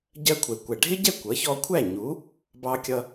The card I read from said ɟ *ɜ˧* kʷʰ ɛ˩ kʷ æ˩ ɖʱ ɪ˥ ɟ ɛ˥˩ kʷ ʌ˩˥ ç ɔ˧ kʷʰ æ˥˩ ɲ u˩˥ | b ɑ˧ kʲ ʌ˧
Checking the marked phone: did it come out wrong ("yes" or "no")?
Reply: no